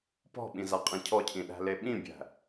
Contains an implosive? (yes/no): yes